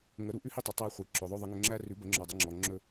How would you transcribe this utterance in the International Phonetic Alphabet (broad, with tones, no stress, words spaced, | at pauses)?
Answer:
ŋə˨˩˦ ɾu˨ʔʉ˦hi˦tˤɵ˨ tˤæ˦χʷi˨ǁɵ˨ðˤɵ˦ ðˤə˨˩˦ŋɵ˨ ŋ͡ǁæ˦ rʉ˨˩˦bə˨˩˦ŋ͡ǁɔ˨dˤə˨˩˦ ŋ͡ǁɔ˨ŋ͡ǁɵ˦